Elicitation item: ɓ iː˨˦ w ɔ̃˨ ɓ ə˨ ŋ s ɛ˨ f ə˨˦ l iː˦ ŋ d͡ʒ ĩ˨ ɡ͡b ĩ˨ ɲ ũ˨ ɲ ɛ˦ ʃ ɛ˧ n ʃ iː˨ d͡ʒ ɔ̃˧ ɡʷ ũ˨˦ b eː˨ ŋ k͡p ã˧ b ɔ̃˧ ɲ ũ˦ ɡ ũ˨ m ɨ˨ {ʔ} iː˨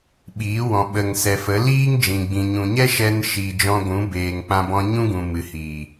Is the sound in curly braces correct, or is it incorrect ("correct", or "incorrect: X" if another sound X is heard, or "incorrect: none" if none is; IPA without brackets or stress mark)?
incorrect: h